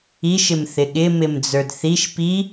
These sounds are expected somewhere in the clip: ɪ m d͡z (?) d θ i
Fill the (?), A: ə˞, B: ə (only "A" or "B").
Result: A